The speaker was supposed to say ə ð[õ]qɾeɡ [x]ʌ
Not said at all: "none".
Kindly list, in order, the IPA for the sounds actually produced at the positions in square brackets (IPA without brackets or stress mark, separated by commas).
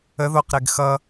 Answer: o, x